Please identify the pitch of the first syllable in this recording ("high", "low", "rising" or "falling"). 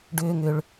low